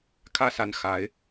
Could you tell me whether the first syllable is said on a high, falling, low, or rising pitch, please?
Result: falling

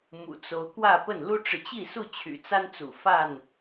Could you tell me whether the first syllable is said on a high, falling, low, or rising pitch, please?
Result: low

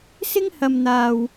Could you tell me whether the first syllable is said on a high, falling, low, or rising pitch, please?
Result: high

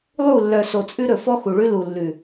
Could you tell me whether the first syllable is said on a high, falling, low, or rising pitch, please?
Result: falling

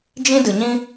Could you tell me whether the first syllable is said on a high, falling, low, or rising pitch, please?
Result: high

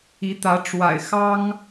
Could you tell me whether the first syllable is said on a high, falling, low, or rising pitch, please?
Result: rising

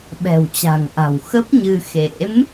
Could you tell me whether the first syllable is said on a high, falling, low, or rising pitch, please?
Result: low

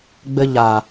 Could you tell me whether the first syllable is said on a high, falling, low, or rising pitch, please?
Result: low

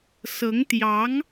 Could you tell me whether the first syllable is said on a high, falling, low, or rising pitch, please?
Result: rising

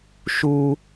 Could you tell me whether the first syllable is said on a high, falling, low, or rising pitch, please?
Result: high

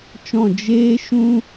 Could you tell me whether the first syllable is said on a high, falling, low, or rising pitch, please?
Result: falling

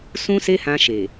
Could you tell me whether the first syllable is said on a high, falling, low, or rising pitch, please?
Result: high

